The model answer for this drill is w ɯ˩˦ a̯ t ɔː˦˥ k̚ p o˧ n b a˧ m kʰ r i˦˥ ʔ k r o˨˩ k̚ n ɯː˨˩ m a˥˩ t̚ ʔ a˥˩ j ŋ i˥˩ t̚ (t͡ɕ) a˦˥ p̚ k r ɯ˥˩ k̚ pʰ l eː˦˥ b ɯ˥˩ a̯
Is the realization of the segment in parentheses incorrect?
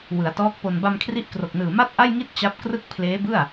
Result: no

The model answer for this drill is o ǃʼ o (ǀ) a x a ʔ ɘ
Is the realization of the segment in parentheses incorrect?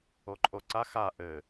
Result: no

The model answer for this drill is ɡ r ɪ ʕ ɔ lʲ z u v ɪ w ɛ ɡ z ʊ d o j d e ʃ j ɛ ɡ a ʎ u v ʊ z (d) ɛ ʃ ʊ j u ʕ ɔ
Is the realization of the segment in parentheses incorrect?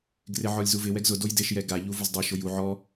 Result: yes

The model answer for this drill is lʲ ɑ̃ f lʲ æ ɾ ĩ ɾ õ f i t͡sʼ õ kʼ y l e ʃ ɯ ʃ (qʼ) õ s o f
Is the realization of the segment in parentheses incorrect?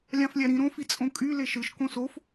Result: yes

